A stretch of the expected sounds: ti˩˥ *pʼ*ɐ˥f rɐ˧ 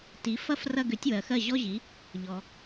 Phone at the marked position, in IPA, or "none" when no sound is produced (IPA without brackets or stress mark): f